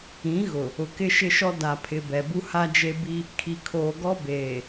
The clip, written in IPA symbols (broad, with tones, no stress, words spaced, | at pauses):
ĩ˨˦ɣʊ˨ | ʊ˨kɪ˦ʃɪ˦ʃɔ˦ da˨pʰɪ˨ bɛ˨bu˦ha˦d͡ʒe˦ bi˦ | kʰi˨kʰoː˨ɡɔ˦ beː˨